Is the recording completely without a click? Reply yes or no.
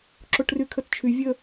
no